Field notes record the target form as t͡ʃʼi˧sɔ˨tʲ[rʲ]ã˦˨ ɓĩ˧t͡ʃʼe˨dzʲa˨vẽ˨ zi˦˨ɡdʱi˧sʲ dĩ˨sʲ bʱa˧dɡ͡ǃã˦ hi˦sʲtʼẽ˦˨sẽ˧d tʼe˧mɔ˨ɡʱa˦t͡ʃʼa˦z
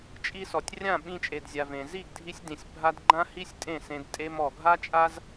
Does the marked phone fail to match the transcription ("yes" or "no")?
no